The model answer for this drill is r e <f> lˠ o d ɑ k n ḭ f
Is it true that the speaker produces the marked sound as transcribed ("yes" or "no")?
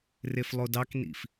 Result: yes